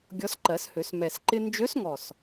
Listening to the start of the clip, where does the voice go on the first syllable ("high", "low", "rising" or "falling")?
rising